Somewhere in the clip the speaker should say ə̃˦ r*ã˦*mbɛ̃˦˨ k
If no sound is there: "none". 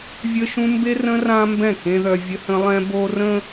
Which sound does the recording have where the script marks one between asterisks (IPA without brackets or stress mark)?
ã˦